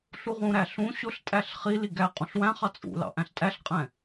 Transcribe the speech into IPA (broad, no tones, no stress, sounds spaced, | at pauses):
ɬ u ʁ ũ ɾ æ ɬ ũ ɕ ʊ ɬ tʼ æ ɬ χ i l i ɡ æ qʼ ũ ɬ w æ̃ χ ɑ t͡sʼ ṵ l ɑ̰ ʔ æ̃ ɬ tʼ æ ɬ qʼ ɛ̃